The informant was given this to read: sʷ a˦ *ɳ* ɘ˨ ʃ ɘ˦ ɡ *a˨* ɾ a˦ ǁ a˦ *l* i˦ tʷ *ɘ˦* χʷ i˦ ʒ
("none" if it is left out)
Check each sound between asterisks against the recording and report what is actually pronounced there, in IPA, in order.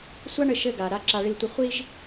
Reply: ɳ, a˨, ɭ, ɘ˦

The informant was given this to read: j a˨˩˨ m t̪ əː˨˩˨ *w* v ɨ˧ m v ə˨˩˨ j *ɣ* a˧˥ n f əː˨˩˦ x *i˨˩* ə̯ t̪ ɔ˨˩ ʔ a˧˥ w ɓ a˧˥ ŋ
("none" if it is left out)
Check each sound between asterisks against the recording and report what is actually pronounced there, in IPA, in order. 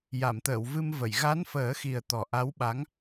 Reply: w, ɣ, i˨˩

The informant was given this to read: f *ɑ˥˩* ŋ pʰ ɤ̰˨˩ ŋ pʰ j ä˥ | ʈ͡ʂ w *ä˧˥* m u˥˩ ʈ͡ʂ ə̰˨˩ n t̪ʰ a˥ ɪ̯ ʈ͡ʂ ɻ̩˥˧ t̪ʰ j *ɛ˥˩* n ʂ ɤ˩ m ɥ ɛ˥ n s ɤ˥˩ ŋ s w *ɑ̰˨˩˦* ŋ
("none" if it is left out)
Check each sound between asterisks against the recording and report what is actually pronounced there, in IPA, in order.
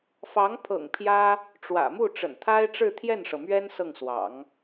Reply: ɑ˧˥, ä̰˨˩, ɛ˥˩, ɑ̰˨˩˦

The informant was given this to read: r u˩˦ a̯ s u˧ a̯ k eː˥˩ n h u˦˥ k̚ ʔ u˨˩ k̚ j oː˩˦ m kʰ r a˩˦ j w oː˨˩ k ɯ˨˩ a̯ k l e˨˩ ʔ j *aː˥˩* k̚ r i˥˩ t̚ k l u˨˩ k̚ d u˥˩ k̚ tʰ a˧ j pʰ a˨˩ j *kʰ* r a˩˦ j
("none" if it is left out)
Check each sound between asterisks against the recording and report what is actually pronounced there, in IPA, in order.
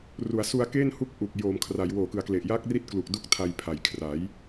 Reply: aː˥˩, kʰ

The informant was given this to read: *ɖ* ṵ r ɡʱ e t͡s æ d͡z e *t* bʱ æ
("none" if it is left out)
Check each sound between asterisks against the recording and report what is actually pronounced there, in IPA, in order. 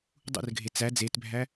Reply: dˤ, t

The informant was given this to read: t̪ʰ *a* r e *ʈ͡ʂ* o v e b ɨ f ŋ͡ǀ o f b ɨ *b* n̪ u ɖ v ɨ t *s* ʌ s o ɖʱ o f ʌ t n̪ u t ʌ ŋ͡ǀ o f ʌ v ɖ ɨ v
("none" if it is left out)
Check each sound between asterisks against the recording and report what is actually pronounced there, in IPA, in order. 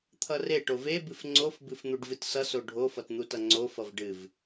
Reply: ʌ, ʈ, f, s

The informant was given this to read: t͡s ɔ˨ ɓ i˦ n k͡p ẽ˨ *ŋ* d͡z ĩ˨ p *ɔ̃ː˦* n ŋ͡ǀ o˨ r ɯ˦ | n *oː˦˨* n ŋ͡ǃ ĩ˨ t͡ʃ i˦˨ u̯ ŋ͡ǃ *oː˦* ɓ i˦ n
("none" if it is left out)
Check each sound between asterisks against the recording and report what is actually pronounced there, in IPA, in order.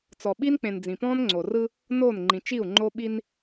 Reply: n, ɔ̃ː˦, oː˦˨, o˦

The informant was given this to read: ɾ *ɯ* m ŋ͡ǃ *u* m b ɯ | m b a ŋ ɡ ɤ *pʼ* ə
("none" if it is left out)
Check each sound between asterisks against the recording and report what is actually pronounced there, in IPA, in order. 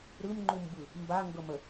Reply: ɯ, u, m

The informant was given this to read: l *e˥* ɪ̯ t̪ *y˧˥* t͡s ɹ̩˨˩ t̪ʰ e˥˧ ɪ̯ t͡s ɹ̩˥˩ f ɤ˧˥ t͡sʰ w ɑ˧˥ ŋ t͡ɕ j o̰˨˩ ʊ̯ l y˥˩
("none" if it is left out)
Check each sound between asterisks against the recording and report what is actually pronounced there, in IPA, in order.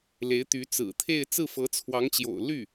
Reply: e˧˥, y˧˥

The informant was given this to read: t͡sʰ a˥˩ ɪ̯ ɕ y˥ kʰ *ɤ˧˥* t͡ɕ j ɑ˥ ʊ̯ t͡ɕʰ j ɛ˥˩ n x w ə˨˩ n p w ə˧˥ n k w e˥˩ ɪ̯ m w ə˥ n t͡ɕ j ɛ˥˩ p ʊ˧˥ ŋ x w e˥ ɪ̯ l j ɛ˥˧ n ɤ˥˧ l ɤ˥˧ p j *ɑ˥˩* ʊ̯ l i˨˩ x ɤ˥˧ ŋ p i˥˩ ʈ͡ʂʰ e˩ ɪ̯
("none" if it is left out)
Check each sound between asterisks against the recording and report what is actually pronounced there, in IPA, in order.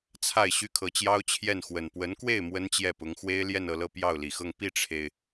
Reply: ɤ˧˥, ɑ˥˩

